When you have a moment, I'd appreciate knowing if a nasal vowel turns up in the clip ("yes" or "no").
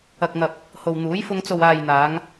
no